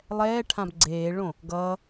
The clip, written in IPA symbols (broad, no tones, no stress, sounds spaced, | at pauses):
lˠ ɛː ʈʰ ã b ɡ͡ǀ eː ɭ õ | ɡ ʌː